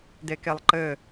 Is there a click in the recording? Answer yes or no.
yes